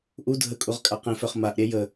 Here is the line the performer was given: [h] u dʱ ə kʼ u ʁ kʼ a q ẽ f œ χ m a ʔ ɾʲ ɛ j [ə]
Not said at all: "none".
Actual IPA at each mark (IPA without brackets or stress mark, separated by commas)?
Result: ʔ, ə